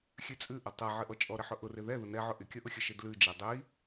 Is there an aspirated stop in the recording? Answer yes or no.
no